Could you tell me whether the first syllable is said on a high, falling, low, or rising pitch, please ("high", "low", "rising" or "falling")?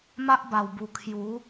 high